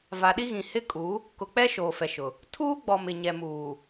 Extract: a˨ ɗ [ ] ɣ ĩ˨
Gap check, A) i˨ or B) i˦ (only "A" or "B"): B